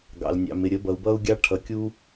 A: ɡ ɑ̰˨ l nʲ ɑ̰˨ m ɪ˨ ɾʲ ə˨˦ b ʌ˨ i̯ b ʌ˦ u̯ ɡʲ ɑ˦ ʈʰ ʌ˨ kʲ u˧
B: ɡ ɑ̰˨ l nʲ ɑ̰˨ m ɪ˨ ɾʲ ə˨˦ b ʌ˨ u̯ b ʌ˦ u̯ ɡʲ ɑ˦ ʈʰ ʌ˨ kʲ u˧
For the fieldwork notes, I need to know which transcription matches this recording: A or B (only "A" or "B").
B